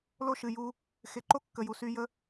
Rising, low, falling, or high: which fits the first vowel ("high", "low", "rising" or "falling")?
high